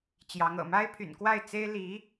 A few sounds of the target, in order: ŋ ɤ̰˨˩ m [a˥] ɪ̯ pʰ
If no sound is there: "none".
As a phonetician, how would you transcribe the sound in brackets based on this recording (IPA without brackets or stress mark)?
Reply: a˥